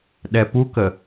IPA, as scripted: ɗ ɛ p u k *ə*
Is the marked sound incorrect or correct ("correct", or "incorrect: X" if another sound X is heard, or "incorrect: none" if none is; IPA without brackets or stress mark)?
correct